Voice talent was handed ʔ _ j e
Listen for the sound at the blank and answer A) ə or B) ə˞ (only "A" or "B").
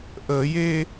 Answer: A